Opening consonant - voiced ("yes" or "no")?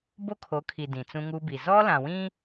yes